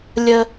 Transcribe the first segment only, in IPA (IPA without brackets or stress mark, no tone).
lʲ